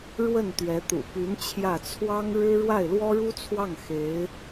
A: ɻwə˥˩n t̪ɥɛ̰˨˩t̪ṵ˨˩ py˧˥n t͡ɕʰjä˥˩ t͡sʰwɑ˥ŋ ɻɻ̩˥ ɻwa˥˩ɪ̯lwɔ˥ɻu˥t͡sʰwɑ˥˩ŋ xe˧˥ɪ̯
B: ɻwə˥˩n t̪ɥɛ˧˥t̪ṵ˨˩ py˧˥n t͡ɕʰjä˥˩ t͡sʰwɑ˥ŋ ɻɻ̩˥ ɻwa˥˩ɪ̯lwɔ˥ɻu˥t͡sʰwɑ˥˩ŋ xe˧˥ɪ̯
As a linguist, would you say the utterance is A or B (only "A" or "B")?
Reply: B